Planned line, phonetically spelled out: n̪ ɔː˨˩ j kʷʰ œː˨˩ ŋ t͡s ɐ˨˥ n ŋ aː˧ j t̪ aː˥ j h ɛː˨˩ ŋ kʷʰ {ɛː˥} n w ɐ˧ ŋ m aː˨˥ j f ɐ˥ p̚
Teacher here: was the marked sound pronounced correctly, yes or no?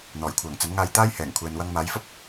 no